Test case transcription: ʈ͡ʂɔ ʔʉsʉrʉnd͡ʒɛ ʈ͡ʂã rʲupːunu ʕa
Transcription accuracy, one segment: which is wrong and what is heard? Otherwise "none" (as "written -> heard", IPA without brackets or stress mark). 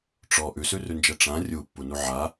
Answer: none